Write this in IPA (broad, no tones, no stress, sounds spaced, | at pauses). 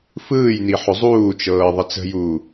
f ɯː j n i ħ ʊ zˤ uː t͡ʃ ɤː ðˤ ə t͡s ə̤ j uː